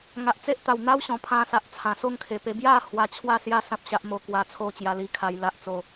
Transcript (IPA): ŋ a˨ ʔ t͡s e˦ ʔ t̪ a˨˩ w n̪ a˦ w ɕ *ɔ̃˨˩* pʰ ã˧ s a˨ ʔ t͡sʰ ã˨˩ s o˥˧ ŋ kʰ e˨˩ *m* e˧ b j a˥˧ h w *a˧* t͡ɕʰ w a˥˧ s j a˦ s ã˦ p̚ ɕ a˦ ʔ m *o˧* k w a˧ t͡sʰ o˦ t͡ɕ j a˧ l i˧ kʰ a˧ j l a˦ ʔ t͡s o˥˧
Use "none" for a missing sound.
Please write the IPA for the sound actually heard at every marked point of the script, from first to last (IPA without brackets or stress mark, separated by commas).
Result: ɔ̃˨˩, p, a˧, o˧